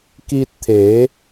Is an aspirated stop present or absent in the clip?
present